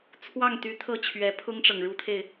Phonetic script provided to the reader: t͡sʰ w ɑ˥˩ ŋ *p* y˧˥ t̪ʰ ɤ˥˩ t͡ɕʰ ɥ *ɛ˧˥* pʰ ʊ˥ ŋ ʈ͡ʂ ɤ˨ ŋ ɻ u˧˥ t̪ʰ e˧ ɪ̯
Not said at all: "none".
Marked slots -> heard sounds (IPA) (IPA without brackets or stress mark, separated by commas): t̪, ɛ˧˥